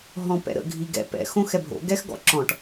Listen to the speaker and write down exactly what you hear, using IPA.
ɦ ɔ̃ p ɛ̰ ɾ ə̰ ɡʱ i ɡ ɛ̰ p ɛ̰ x õ x ɛ bʱ o̰ ɡ ɛ x ɡ ɔ̰ ǁ ɔ̃ ʈ

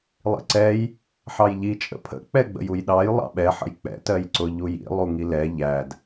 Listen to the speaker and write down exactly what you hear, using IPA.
lˠ ḭ ǀ ɛ j | ħ ɑ j ʎ i t͡ʃʼ ə̰ pʰ ə̰ k͡p ɛ ɡ͡b ə̰ j u j ɗ ɑ j lˠ ɑ̰ ɓ ɛ ħ ə̰ j k͡p ɛ̰ t ɜ j ǀ ʊ ʎ u j ḭ lˠ u ŋ i l ɛ ʎ æ d

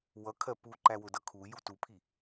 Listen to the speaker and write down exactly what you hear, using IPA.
w ʌ kʰ ɜ p u ǃ æ w ʊ d ʌ kʰ u j u t u pʰ i

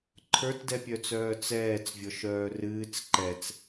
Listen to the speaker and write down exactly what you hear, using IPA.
ǃʰ ə˞ t d ɛ pʲ œ t͡s œː t͡s ɛː t͡s vʲ ɔ ʃ œː r ɨː t͡s ǃ ɛ t͡s

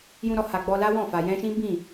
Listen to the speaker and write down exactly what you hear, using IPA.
j ũ˧ ɾ ɔ˧ h a˨ ɡ͡b ɔ˧ l a˦ w ɔ̃˦˨ f a˨ j ɛ̃˧ ʃ ĩ˦ b ĩ˦˨

